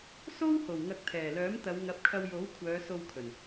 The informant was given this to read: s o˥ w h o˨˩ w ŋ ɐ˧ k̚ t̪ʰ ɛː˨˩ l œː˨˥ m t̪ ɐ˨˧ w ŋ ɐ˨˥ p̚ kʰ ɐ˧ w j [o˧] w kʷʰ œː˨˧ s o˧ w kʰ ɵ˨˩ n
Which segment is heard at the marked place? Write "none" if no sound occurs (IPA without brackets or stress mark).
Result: o˨˥